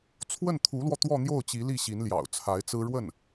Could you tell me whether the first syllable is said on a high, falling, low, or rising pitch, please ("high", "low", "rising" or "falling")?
falling